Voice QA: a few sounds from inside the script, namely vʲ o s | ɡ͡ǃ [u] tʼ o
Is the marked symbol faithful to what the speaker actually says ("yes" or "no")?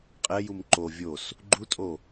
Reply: yes